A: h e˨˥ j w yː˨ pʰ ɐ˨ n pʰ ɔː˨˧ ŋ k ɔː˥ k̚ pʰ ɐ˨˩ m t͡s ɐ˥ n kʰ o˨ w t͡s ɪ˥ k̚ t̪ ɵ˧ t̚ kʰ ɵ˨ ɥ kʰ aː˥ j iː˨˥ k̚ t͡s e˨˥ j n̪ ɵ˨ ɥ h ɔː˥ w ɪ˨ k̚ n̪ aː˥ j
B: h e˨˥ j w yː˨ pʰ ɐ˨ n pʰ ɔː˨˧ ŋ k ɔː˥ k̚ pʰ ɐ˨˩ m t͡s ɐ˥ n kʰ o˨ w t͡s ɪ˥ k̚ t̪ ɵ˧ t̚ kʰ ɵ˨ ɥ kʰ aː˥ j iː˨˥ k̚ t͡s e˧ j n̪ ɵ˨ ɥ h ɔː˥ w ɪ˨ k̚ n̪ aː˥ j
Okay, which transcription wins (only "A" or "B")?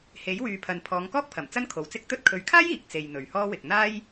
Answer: B